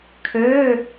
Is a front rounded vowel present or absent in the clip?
present